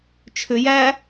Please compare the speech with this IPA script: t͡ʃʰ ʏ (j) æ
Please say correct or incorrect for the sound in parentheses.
correct